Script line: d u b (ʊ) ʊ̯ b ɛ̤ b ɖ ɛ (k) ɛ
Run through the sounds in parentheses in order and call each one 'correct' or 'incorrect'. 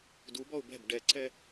incorrect: ɔ, incorrect: ǀ

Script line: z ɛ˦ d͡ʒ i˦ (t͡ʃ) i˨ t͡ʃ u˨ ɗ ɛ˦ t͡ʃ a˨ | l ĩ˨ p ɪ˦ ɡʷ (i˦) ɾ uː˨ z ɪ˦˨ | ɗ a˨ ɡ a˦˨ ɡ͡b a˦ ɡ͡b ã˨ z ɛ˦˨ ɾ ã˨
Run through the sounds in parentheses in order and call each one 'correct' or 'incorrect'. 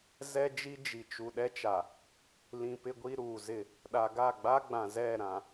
incorrect: d͡ʒ, correct

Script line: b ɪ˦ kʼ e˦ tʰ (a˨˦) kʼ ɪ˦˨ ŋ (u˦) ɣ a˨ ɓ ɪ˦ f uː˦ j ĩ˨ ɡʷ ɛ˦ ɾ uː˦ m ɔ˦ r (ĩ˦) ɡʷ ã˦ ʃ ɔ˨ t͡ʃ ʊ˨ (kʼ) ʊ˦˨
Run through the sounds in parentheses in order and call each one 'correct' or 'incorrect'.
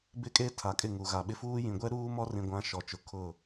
correct, incorrect: u˨, incorrect: ĩ˨, incorrect: kʰ

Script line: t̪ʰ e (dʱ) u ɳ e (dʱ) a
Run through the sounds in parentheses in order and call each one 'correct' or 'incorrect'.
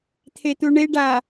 incorrect: t̪, incorrect: ɖ

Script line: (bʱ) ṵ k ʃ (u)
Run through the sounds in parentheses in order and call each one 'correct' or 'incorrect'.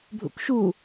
correct, correct

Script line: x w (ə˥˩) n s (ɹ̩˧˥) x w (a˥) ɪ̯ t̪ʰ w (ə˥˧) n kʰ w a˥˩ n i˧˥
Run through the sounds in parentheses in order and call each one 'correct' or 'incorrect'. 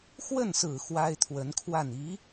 correct, incorrect: ɹ̩˨˩, correct, incorrect: ə˧˥

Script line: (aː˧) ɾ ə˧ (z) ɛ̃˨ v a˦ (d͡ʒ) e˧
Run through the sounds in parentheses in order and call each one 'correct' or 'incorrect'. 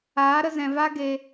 incorrect: aː˨˦, correct, incorrect: ɡ

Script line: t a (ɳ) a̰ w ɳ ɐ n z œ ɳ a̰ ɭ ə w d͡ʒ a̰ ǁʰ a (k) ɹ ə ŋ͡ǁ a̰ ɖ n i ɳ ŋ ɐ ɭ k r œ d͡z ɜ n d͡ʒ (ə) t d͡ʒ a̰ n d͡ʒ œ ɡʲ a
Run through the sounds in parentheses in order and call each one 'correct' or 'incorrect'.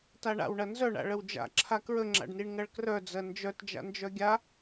correct, correct, incorrect: œ

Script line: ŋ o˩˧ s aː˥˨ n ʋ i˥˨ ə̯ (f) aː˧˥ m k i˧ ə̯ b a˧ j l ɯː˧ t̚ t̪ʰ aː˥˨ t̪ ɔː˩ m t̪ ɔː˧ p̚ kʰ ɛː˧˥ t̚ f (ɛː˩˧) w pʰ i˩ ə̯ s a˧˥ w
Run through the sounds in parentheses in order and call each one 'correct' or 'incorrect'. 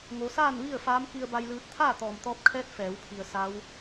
correct, correct

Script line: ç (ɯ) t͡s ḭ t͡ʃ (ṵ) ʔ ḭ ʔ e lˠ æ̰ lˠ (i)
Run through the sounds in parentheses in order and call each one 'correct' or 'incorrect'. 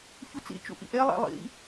incorrect: u, correct, incorrect: ḭ

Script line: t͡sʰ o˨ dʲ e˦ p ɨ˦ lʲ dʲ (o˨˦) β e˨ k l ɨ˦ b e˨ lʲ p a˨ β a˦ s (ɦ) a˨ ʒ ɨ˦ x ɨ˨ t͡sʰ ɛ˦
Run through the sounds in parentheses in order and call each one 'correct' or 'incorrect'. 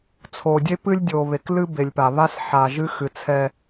incorrect: o˨, incorrect: ħ

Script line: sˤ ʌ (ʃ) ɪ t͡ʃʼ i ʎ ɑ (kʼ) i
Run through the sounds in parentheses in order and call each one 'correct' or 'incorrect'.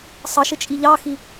correct, incorrect: x

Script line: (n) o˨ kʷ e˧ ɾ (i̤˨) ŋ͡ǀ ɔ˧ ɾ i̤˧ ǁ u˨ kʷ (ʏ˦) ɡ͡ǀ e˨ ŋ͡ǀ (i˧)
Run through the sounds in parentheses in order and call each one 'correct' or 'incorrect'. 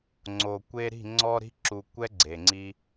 incorrect: ŋ͡ǀ, incorrect: i̤˦˨, incorrect: ɛ˦, correct

